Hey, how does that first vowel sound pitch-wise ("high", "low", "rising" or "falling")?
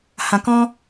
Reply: low